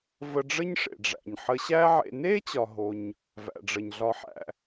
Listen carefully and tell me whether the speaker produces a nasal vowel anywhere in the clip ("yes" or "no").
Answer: no